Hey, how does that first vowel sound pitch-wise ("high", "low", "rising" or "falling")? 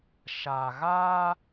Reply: low